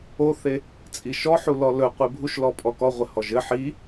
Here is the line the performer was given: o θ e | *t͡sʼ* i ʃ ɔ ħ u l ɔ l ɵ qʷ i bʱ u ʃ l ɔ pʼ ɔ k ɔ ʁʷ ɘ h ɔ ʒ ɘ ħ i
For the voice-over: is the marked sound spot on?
yes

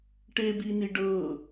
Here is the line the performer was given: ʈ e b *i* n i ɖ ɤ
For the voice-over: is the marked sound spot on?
yes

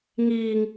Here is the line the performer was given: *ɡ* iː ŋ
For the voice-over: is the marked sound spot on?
no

